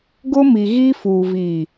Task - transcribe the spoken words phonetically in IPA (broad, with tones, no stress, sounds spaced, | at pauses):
ɡ ʊ˦ m i˨ ɣ i˦ f uː˨ v i˨